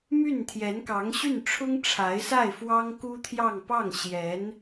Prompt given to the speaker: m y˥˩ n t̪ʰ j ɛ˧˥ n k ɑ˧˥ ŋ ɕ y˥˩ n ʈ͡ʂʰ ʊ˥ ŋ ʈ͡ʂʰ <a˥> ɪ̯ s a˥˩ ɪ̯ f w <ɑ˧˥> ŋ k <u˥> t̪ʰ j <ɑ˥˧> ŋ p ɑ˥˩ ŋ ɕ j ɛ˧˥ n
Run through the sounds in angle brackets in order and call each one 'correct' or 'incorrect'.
incorrect, incorrect, correct, correct

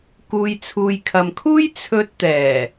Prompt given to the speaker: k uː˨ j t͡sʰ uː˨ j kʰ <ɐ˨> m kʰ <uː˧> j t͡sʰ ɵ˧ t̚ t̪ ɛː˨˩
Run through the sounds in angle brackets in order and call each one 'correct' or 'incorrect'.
correct, incorrect

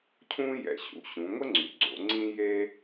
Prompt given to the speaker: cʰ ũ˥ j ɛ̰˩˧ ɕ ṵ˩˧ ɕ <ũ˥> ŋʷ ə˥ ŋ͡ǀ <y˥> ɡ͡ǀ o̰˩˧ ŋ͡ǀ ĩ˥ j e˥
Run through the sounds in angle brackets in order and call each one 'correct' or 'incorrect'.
incorrect, incorrect

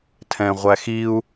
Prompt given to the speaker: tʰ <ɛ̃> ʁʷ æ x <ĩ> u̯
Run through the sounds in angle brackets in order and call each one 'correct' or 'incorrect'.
correct, incorrect

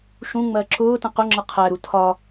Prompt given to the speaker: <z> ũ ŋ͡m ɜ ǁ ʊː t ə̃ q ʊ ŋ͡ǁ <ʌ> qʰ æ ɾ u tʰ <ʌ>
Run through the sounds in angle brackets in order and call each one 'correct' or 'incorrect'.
incorrect, correct, incorrect

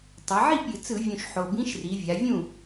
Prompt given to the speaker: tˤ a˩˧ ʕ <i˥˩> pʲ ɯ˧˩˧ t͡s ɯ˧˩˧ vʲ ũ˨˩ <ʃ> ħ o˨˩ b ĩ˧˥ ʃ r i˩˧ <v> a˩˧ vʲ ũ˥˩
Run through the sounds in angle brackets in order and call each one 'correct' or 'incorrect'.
correct, correct, incorrect

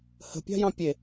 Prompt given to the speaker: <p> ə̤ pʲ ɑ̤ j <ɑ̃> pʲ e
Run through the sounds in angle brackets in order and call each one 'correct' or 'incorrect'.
incorrect, correct

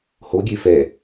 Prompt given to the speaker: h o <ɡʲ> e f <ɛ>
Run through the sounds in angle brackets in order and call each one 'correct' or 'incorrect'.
correct, correct

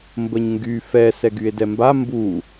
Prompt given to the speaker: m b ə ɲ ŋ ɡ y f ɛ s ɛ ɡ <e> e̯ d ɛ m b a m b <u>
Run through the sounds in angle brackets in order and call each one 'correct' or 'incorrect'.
incorrect, correct

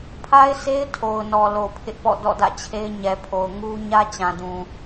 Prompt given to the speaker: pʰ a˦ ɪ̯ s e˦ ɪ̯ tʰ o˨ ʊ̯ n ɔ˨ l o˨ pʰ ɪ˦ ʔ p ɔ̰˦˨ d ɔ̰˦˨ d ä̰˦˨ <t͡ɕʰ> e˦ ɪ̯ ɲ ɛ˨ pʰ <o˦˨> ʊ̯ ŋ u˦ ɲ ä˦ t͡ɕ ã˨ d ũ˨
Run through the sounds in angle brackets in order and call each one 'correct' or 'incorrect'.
correct, incorrect

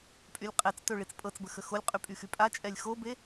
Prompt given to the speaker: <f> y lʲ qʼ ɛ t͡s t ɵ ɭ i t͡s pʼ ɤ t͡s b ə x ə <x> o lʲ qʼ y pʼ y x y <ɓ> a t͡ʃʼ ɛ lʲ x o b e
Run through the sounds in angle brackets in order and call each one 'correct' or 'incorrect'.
incorrect, correct, incorrect

